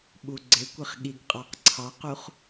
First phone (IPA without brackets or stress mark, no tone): ɓ